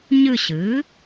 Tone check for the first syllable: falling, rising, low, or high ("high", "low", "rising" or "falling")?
falling